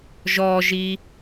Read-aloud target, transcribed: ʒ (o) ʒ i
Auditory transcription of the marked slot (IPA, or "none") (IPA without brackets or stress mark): ɔ